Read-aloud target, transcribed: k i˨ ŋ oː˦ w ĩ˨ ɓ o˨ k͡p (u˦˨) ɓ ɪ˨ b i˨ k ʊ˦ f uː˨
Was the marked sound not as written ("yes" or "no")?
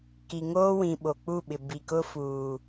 no